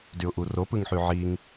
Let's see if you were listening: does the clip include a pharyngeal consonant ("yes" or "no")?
yes